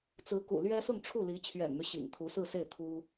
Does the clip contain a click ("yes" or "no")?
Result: no